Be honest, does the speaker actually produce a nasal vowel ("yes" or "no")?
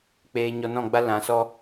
yes